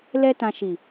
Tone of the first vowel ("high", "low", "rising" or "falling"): high